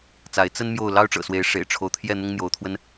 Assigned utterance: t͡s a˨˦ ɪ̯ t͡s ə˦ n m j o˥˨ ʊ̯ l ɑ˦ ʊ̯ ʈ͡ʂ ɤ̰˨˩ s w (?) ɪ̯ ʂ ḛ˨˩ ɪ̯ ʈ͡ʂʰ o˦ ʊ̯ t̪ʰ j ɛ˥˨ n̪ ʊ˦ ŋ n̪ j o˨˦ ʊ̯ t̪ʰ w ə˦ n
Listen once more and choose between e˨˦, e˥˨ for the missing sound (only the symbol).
e˨˦